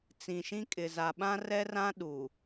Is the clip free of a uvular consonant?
yes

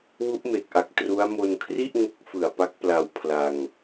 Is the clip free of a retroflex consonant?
yes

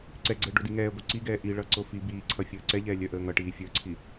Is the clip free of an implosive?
yes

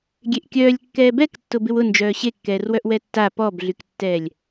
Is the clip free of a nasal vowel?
yes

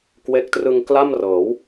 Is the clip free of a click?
yes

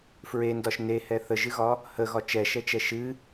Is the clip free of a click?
yes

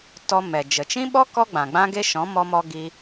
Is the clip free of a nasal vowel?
no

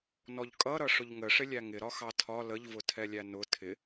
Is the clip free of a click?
yes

